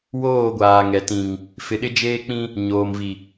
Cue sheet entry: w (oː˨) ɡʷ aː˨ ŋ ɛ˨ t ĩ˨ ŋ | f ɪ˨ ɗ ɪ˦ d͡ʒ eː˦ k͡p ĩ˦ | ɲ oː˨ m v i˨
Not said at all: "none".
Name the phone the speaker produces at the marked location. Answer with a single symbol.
oː˦˨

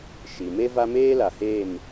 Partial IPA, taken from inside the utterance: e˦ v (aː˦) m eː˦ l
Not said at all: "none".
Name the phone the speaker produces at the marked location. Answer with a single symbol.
a˦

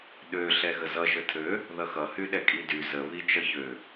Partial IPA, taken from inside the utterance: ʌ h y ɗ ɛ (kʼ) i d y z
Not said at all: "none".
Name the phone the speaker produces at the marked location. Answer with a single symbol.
kʼ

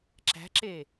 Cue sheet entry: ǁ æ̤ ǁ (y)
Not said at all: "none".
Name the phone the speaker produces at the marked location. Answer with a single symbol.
e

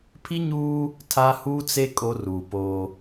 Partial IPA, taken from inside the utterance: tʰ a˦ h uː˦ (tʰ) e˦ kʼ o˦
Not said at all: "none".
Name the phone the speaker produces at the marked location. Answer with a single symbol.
t͡s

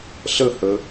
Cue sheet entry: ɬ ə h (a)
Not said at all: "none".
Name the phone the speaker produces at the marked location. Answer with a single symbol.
ə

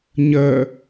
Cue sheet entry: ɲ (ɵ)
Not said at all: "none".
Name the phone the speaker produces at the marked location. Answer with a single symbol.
ə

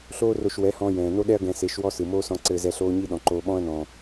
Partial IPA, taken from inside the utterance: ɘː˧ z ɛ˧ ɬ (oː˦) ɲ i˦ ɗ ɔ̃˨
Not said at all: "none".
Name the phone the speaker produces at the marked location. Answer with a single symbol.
oː˦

